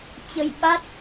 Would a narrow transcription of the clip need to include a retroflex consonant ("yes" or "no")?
no